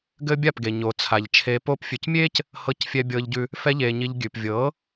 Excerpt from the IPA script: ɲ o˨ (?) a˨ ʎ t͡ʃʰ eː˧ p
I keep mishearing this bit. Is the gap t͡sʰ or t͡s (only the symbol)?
t͡sʰ